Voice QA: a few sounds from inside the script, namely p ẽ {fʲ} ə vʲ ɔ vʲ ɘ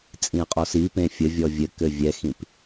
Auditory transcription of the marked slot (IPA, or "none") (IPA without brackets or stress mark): fʲ